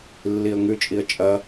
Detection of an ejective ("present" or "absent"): present